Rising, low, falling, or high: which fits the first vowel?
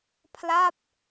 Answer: falling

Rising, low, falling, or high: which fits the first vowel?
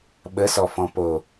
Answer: rising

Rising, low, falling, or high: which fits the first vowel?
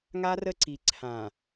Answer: high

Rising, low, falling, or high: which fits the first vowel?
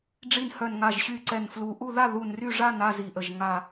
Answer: low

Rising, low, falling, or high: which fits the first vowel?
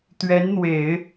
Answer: rising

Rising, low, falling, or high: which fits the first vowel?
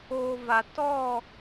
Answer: low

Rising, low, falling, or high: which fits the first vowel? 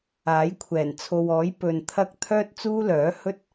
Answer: rising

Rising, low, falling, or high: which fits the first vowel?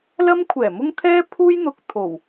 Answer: high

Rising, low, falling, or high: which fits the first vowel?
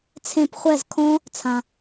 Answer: falling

